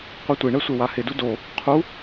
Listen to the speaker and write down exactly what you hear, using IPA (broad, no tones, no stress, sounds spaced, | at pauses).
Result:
qʷ ɛ tʷ e ɳ ɛ sʷ e w a h ɪ d u d o | qʰ u